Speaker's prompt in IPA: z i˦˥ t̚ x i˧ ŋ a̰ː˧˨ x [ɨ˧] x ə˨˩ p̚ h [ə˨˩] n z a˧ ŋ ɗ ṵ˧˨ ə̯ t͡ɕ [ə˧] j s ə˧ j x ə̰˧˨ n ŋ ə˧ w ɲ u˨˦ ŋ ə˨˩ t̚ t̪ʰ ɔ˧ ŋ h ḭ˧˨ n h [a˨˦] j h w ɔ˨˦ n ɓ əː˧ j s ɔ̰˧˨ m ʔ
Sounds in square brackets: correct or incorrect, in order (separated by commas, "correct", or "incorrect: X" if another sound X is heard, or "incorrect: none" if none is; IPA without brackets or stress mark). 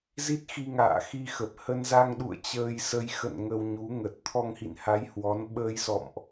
incorrect: i˧, incorrect: ə˧, incorrect: əː˧, correct